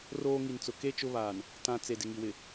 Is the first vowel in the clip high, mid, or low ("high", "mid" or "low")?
mid